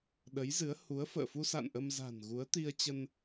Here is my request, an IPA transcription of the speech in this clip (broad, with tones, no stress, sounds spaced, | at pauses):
ɗ ə˨˦ j z ɨ˨˦ ə̯ h u˨˦ ə̯ f ə̰ː˧˨ f u˧ s a̰˧˨ n ʔ ə˧ m z a̤˨˩ n ɣ u˨˦ ə̯ t̪ i˧ ə̯ t͡ɕ ə˧ n